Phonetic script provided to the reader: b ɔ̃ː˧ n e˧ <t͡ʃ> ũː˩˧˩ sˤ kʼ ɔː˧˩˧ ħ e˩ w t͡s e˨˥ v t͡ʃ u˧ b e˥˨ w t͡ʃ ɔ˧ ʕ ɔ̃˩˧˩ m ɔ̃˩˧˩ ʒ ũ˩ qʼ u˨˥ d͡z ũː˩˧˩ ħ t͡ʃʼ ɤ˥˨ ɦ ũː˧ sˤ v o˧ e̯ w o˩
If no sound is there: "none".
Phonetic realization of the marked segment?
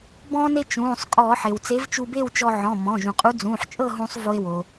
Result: t͡ʃ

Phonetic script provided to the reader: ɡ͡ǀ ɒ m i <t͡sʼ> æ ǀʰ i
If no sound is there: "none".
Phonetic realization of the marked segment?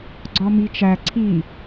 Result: t͡ʃ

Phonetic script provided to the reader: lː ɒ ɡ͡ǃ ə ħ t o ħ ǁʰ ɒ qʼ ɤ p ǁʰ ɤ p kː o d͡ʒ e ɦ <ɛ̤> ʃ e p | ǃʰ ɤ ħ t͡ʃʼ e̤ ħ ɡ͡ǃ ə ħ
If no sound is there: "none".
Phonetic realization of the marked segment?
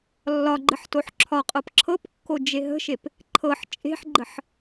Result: ə̤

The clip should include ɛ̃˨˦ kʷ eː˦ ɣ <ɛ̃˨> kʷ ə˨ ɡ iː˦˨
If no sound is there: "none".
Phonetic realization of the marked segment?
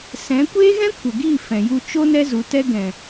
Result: ɛ̃˦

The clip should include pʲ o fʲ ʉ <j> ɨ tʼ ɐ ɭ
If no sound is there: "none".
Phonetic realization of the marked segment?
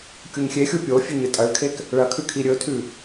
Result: ɲ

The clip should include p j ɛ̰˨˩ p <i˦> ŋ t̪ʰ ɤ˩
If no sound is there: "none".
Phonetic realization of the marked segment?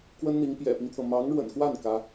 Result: i˦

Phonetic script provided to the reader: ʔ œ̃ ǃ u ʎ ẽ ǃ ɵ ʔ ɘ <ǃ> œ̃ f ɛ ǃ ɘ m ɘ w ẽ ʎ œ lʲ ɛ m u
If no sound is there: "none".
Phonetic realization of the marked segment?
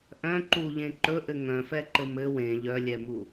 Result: ŋ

